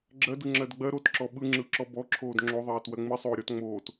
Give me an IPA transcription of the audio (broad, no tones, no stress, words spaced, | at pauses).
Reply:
ɡ͡ǁɜd ɯŋ͡ǁɜdɡ͡bɜ ɾotǁɔ ɓɯŋ͡ǁɯǁɔ bɔ ǁʰoːdŋ͡ǁoðˤɜːt wɜŋ͡mɨ sˤoːɾʲɔt ŋ͡moːt